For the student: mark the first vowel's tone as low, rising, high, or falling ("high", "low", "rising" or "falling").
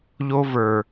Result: high